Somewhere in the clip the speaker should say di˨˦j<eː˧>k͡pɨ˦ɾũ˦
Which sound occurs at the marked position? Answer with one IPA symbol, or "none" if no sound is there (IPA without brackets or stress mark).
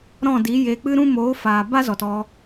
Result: eː˧